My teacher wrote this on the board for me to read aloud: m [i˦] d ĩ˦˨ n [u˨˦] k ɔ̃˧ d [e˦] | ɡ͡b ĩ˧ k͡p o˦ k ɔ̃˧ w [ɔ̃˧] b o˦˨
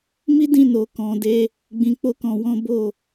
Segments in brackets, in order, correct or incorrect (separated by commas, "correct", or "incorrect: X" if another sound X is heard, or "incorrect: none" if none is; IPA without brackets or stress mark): correct, incorrect: o˨˦, correct, incorrect: ɔ̃˦